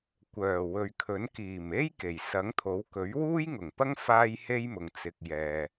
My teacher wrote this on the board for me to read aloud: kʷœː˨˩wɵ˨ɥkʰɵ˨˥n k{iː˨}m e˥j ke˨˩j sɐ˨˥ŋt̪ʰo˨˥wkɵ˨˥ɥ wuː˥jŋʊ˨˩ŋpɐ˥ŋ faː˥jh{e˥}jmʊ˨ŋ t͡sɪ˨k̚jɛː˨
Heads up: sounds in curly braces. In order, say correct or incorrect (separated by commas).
incorrect, correct